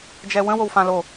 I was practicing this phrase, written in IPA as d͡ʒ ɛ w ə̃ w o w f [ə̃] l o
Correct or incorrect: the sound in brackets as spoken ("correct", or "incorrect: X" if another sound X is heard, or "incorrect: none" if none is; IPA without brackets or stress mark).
incorrect: ã